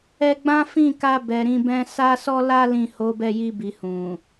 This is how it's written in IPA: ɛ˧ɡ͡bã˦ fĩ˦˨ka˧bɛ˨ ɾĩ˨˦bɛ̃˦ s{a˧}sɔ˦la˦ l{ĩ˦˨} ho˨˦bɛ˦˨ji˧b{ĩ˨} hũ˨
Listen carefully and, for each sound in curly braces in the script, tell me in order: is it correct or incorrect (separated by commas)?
incorrect, correct, incorrect